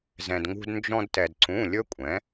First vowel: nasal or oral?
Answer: nasal